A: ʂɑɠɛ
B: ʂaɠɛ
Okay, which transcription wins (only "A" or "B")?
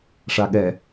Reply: B